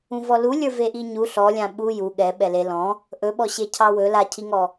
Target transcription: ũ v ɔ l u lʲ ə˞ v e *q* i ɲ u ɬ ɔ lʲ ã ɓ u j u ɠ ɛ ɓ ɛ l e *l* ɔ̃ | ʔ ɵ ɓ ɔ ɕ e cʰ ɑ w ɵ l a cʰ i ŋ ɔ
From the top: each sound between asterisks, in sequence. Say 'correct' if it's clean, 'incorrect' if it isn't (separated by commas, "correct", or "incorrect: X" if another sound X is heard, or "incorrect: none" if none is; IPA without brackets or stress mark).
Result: incorrect: ʔ, correct